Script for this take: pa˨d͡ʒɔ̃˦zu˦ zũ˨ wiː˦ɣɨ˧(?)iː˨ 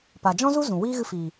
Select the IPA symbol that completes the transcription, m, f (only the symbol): f